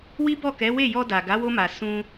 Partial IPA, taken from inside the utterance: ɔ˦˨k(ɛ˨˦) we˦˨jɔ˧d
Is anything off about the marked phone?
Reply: no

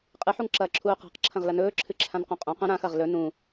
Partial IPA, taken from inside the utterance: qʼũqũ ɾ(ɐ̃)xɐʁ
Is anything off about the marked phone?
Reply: yes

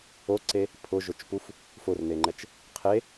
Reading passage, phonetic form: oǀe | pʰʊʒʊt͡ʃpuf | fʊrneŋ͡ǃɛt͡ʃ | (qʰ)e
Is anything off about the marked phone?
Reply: no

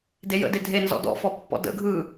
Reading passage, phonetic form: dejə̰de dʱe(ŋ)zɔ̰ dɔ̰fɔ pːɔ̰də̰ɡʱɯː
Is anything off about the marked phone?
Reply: yes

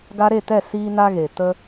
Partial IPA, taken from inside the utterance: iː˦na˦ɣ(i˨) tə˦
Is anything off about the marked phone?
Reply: yes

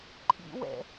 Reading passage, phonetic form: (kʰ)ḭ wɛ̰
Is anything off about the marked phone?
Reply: yes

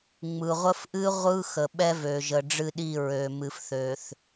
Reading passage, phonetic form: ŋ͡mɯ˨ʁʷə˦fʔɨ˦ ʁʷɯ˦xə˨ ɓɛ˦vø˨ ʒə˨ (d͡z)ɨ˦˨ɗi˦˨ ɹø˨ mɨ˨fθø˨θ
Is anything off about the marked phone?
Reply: yes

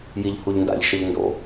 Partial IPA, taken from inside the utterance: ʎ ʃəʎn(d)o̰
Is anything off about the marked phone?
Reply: no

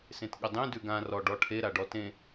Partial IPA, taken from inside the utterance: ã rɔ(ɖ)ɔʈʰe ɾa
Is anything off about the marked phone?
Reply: no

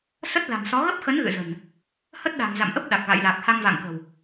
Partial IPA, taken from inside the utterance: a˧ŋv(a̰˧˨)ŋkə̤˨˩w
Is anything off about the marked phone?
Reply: no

